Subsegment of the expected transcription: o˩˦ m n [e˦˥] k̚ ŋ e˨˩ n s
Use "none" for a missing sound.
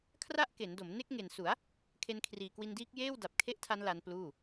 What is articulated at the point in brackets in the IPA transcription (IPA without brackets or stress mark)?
e˦˥